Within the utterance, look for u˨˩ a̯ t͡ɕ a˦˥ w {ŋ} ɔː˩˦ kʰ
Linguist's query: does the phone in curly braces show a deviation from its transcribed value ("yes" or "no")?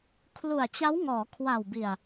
no